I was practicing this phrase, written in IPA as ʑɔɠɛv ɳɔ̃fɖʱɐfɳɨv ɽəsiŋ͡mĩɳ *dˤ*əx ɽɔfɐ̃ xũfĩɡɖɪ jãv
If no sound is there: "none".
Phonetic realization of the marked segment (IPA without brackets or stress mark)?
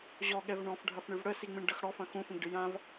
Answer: ɖ